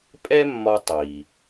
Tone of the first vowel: high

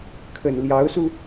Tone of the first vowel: low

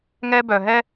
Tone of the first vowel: high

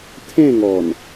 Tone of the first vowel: falling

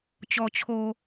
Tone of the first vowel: low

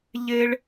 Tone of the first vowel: high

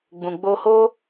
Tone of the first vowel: low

